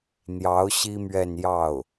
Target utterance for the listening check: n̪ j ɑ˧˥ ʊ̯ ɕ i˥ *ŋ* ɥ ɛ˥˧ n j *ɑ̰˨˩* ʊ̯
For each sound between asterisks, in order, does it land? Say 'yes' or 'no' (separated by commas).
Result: no, no